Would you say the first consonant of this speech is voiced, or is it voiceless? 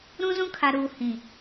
voiced